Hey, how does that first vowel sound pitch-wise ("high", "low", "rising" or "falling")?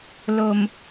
low